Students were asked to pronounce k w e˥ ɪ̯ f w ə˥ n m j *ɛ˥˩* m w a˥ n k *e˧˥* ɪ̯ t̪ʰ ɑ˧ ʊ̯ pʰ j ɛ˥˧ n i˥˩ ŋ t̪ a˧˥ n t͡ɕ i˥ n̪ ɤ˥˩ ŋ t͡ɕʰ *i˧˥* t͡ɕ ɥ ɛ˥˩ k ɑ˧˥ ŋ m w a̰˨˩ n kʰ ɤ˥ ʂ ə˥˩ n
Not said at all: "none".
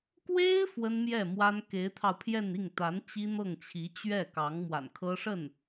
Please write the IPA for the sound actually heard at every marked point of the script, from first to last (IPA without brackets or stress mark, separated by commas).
ɛ˥˩, e˧˥, i˧˥